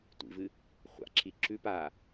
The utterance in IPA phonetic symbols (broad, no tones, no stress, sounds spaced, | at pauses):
tʷ ḭ v ɨ | χʷ a̰ ǁʰ i ǁ ʉ p a